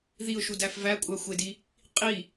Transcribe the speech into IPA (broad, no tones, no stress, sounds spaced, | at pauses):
ð i ʊ̯ ʃ u d æ f v æ kʷʼ æ xʷ e d i | qʼ i